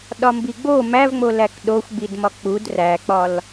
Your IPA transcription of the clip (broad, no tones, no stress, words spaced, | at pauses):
ɗɒmbiɡ͡bo mævŋ͡mo lækɗoxʷɡ͡bidmɒ k͡pud ræk͡pɒl